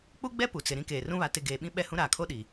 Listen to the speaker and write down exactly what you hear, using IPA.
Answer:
k͡p u˦ ɡ͡b ɛ˦ p u˨ t͡s ɪ˨ ɾ ĩ˦ k eː˨ r ũ˦ β a˨ t ɪ˨ ɡ eː˨ ɓ ĩ˦ ɓ ɛ˦˨ h ũ˦ ɾ aː˨ kʰ o˦ ɗ i˨

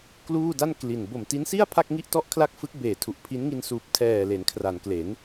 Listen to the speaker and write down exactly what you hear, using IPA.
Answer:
k l uː˥˩ d a˥˩ n k l i˨˩ n b o˨˩ m t i˦˥ n s i˥˩ a̯ pʰ a˥˩ k̚ ŋ i˥˩ ʔ t ɔ˥˩ ʔ kʰ l a˥˩ k̚ f ɯ˦˥ k̚ b eː˨˩ tʰ u˨˩ ʔ pʰ i˦˥ n ŋ i˧ n s uː˨˩ p̚ tʰ ɛː˨˩ l e˩˦ n kʰ r a˩˦ n k l e˩˦ n

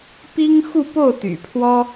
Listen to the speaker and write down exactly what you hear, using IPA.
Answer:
p i˥ ŋ x u˥˧ p o˥˩ ʊ̯ t̪ y̰˨˩ pʰ w ɔ˥

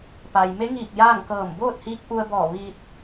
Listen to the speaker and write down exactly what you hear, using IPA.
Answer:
p a˩ j m e˧˥ ŋ iː˧˩ k̚ j aː˥˨ ŋ k ɤː˧˩ m b oː˥˨ t̚ h iː˧˥ k̚ ʔ u˧ ə̯ b ɔː˧˩ ʋ iː˧ t̚

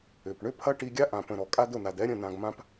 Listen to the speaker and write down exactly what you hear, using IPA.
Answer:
ʏ˨ p ɳ ʏ˦ pʰ ɐ˦ ʈ i˧ ɡʲ a˦ ʔ ã˨ p ə̃˨ ɾ ɔ˨ kʼ a˦ d ʊ˦˨ n a˨ d ɛ˦ ɾʲ ə̃˦˨ n ã˧ ɡ m ã˦ p

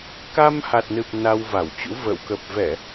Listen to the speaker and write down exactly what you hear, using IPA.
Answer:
k a˧ m h a˨˩ t̚ n ɨ˨˩ p̚ n a˧ w v a˧˩ w t͡ɕ ṵ˧˥ v ə̰ː˧˨ w k ə˨˩ p̚ v ɛ˧˩˨

